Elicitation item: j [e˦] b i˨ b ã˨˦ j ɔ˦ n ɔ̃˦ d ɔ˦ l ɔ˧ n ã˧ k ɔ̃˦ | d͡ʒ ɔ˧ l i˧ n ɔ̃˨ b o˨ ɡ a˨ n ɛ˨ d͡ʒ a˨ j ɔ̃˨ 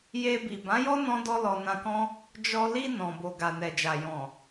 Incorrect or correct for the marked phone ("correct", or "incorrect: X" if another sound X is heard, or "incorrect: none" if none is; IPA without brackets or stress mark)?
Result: incorrect: e˧